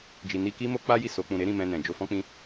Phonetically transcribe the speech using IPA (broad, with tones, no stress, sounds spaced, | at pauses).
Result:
d͡ʒ i˨ n i˧ k i˦ m o˦ k͡p a˦ j i˦˨ s o˨˦ k͡p ũ˧ ɾ e˦ ɾ ĩ˦˨ m ɛ̃˧ n ɛ̃˨ d͡ʒ o˧ f ɔ̃˦ k͡p ĩ˦